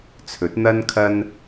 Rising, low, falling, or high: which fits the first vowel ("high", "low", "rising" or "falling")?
rising